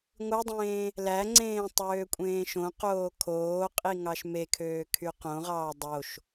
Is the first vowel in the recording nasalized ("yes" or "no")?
no